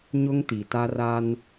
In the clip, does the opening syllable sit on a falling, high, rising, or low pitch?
high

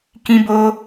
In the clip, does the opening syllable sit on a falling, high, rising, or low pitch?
high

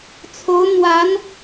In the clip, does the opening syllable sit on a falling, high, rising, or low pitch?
rising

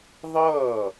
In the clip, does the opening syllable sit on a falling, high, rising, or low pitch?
falling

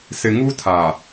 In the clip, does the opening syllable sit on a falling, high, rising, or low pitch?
low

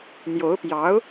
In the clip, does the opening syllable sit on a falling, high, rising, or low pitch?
rising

